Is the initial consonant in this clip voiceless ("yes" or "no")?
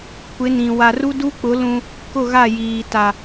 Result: yes